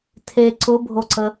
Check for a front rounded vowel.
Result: absent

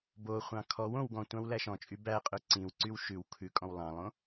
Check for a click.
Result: present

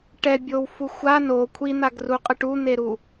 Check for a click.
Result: absent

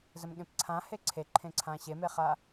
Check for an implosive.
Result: present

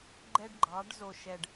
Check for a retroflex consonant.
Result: present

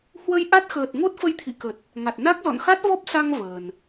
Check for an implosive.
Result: absent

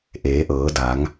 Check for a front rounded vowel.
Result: absent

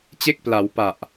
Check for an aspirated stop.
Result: absent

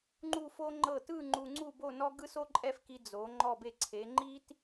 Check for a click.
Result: present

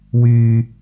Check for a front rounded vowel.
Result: present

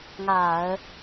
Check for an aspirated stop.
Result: absent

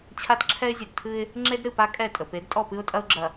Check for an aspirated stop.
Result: present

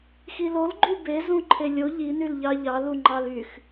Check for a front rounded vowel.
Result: present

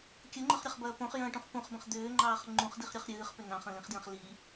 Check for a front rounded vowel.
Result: present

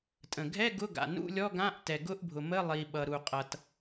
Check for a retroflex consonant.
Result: absent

